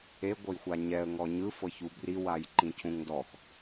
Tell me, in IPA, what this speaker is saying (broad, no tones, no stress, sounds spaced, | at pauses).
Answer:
e ɡʷ ɤ j xʷ a ɲ ɛ ə̯ ŋ ɔ ɲ ɯ f ɤ ç u b r i w a j ǃ ĩ cʰ ũ ŋ d ɔ x